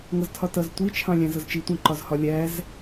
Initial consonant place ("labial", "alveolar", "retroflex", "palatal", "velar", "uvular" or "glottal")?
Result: velar